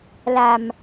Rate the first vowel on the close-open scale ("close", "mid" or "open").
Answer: open